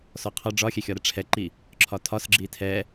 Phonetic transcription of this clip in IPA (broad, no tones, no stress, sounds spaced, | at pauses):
s ɔ qʰ ɒ ɖ͡ʐ ɒ xʲ ɛ xʲ ɒ ɾ ɛ ʈ͡ʂʰ ɛ ǃ i | ǁʰ ɒ tʰ ɒ s ɡ͡ǁ i tʰ ɛ